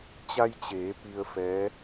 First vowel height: low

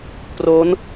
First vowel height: mid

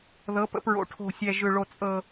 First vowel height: mid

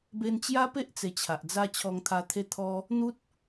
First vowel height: mid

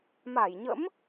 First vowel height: low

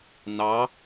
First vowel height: low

